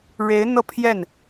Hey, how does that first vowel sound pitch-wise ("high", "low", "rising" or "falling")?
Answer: rising